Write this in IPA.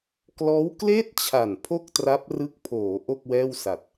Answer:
k l ɔː˦˥ w k l eː˥˩ t̚ t͡ɕʰ a˨˩ n pʰ o˥˩ k̚ t r a˦˥ p̚ r ɯ˦˥ k̚ pʰ oː˩˦ ʔ o˥˩ k̚ w ɛː˥˩ w s a˨˩ t̚

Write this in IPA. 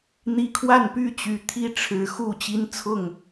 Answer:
n̪ i˨˦ kʰ w a˥˨ n p y˥˨ t͡ɕ y˨˦ t̪ʰ i˥˨ ʈ͡ʂʰ ɻ̩˨˦ x u˥˨ t͡ɕ i˦ n t͡sʰ ʊ˥˨ ŋ

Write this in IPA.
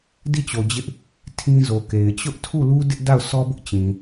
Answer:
d i˦˨ t͡ɕ o˨ d͡ʑ ɪ˦ ʔ | tʰ ĩ˦ z o˨ k e˨ ɪ̯ t͡ɕ ʊ˦ ʔ tʰ u˦˨ l u˦ d ɪ˦ ʔ d a˦˨ ʊ̯ sʰ ɔ˦ b ʊ˦ ʔ t͡ɕ ĩ˨

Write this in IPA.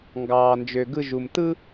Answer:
ŋ ɡ ɑː˨ n d͡ʒ ø˨ ɡ ɯ˧ ʒ u˨ m t ɯ˦

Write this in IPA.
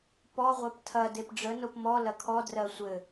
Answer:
p ɔ ʁʷ ɜ p tʰ ɐ d e p ɖ͡ʐ ə n o p m ɔ l ɐ kʰ ɔ d r ɜ sʷ ɘ

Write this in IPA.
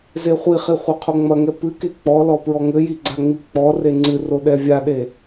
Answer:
z e χʷ i χ i χʷ ɛ qʰ o ŋ͡m ɐ ŋ ɛ p ɨ k e k͡p ɔ l ɔ p ɹ ɔ ŋ ɘ j i ɡ͡ǀ a ŋ͡m i k͡p ɔ r e ŋ͡ǀ ɨ r o ɗ ɛ vʲ a ɗ e

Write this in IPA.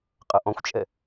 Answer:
qʼ ʌ ʔ ɔ̃ xʷ t͡ʃʼ ɛ

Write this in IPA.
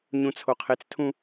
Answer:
ɲ ũ t͡sʰ o qʰ e t͡s tʰ ũ

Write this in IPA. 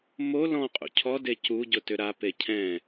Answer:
m o l ɔ̃ qʼ ṵ cʰ ɔ d e c u ɟ ʊ t ʏ ɾ a p e cʰ ɛ̃

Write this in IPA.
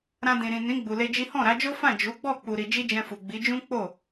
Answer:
ɾ ã˧ d ĩ˨ ɾ ĩ˨ n ĩ˨˦ ɡ͡b u˧ l e˦ d͡ʒ i˦ h ɔ̃˦˨ ɾ a˨˦ d͡ʒ o˦ f ã˦˨ d͡ʒ u˨˦ ɡ͡b ɔ˦˨ k͡p u˧ ɾ i˧ d͡ʒ i˦ d͡ʒ ɛ̃˧ f u˨ ɡ͡b i˨˦ d͡ʒ ũ˦ k͡p o˦˨

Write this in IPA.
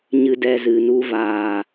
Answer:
ɲ ɨ˧ d ɛ˦ z ɨ˧ n u˧ v aː˨

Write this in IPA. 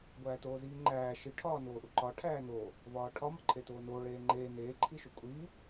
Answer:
ɡʷ æː t̪ oː z iː ŋ͡ǃ æː ʃ i ʈʰ ɒː n oː ʔ u ǃ ɒ ʈʰ æː n̪ oː | v ɒː ʈʰ ɒ m ɒ ǃʰ e t̪ oː n oː ɭ eː ŋ͡ǃ eː n̪ eː ǃʰ i ʃ o kʷʼ iː

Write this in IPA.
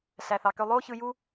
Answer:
ɬ æ˨ θ ɑ˨ k ø˧ lˠ oː˦ ç ɯ˧ j u˦

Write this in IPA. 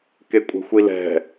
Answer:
k e kʷʼ ɛ̤ xʷ i l ɛ̤

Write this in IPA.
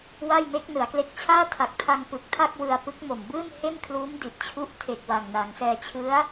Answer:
w a˥˩ j m e˦˥ k̚ n ɯ˩˦ a̯ k l e˦˥ k̚ t͡ɕʰ aː˥˩ tʰ a˨˩ k̚ tʰ a˧ ŋ p ɯ˨˩ k̚ tʰ a˥˩ k̚ w ɯ˧ a̯ p ɯ˦˥ k̚ m o˨˩ m b ɯː˥˩ n h e˥˩ n kʰ l uː˦˥ m d i˨˩ t̚ t͡ɕʰ u˦˥ ʔ tʰ e˨˩ k̚ w a˨˩ ŋ n a˩˦ ŋ s ɛː˧ t͡ɕʰ ɯ˦˥ a̯

